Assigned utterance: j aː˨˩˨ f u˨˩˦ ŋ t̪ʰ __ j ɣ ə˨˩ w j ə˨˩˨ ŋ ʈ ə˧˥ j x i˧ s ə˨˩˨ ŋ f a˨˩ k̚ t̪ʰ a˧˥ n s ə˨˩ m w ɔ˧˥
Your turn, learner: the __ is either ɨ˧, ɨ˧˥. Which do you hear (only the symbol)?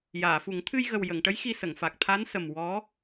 ɨ˧